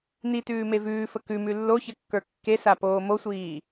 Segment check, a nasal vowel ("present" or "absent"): absent